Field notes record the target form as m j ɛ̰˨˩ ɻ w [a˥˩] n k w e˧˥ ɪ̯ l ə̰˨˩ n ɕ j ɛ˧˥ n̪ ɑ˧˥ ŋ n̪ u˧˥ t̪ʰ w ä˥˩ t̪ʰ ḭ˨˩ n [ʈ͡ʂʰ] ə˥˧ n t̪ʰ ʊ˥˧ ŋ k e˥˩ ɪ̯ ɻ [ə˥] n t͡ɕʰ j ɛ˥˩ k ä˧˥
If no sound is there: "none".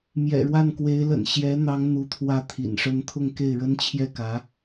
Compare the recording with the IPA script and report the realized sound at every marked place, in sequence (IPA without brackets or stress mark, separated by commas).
a˥˩, ʂ, ə˥